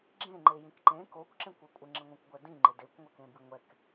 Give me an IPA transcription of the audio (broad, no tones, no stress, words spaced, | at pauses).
ɡ͡ǁẽŋ͡ǃejĩk ǃẽ kokʷǁẽkʷɪ kʷʼɪŋ͡ǁɪŋʷɛ̃kʷɡʷɛ dĩŋ͡ǃɪ dekʷŋʷɛkẽbi ŋʷɛk